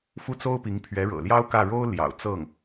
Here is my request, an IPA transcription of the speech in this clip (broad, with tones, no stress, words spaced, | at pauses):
fu˥˩t͡so˥ʊ̯pi˧˥ŋ pʰɥɛ˧˥ɻɤ̰˨˩ljɑ˥ʊ̯kä˥˩ ɻo˥ʊ̯ ljɑ̰˨˩ʊ̯ t͡sɤ˥˩ŋ